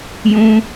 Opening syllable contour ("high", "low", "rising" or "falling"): high